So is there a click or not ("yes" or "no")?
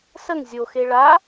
no